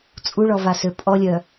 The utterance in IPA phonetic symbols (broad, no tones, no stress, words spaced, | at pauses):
t͡sʼuɭɔvasø pʼɔlʲœ